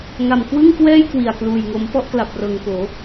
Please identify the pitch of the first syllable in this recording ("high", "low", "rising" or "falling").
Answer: low